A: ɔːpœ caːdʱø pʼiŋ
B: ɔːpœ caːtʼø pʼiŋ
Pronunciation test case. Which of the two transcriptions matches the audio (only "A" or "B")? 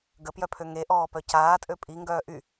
B